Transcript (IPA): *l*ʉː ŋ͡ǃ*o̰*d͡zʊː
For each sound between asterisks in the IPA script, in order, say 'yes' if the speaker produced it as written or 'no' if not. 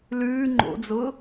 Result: yes, yes

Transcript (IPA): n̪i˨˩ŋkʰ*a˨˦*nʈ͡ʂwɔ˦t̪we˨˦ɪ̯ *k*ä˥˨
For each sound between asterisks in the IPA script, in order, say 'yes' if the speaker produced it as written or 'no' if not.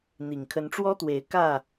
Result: no, yes

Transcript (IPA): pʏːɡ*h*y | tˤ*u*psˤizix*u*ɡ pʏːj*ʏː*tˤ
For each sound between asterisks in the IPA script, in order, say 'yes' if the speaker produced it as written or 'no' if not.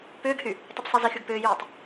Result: yes, yes, no, no

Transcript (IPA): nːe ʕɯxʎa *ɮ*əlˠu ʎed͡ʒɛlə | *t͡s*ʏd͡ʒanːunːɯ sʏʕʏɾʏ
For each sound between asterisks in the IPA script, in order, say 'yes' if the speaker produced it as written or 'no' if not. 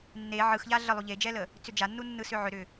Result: yes, yes

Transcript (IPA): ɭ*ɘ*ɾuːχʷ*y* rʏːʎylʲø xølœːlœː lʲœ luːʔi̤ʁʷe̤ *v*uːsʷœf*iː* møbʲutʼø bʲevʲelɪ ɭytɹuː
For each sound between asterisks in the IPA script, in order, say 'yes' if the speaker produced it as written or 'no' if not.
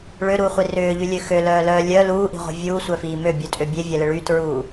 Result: no, no, no, yes

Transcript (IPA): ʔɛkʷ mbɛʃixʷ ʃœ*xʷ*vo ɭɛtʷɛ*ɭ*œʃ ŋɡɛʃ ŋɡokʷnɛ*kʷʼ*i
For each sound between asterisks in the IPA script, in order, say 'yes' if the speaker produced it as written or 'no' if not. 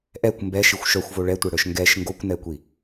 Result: yes, no, no

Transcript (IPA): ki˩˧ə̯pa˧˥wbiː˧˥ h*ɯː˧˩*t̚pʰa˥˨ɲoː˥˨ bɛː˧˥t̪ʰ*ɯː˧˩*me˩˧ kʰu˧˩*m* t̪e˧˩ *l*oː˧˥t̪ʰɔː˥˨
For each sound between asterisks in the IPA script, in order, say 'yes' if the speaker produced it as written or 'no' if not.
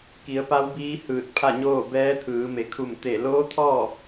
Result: yes, no, yes, yes

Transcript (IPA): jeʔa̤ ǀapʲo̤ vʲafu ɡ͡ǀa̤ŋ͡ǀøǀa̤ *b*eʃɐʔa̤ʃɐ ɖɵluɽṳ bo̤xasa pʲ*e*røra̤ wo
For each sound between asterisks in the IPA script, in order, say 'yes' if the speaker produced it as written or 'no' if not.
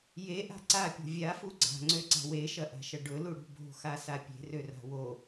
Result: no, no

